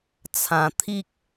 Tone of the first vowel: low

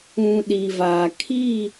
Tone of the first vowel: low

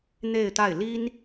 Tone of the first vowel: falling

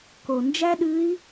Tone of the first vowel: low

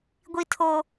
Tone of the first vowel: high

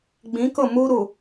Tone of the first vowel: rising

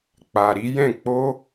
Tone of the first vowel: low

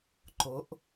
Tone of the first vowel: rising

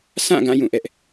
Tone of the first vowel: falling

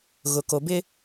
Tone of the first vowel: low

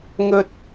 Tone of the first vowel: high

